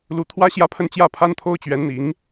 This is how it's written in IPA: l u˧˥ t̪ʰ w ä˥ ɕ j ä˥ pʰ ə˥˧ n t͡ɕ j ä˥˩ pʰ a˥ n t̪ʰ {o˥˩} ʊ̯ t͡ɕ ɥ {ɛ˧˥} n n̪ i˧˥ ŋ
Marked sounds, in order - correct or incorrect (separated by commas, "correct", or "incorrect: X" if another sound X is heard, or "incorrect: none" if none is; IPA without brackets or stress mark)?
incorrect: o˥, correct